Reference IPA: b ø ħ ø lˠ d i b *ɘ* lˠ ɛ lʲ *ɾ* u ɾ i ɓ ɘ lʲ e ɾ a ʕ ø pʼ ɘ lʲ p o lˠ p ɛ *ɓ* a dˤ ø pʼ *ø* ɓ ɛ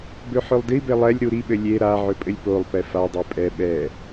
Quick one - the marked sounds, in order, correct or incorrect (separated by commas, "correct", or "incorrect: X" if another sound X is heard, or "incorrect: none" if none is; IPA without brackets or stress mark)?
incorrect: e, correct, incorrect: f, incorrect: ɛ